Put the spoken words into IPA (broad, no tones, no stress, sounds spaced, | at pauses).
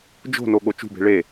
d͡ʒ o̤ n o ɠ o t͡ʃ ṳ b e̤ ɭ e